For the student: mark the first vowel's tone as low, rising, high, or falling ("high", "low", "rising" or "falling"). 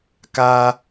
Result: high